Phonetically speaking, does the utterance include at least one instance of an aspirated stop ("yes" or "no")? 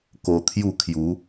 yes